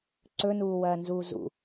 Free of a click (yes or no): no